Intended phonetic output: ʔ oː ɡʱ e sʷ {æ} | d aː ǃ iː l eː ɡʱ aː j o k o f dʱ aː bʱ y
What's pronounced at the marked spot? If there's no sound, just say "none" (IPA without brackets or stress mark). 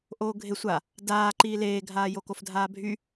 a